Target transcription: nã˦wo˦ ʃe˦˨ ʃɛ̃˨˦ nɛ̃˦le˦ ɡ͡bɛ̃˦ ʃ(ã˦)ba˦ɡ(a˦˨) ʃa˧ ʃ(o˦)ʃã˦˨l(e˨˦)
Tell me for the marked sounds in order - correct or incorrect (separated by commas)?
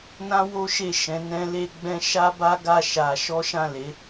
incorrect, correct, incorrect, correct